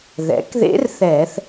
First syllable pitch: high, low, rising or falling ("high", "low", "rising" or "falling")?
rising